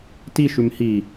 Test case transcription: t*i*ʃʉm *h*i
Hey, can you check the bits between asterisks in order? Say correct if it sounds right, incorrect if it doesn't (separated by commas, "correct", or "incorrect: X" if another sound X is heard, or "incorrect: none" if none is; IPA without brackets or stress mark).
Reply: correct, correct